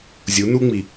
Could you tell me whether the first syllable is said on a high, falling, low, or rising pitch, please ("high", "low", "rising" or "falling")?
rising